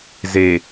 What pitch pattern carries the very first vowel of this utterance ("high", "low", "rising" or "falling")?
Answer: low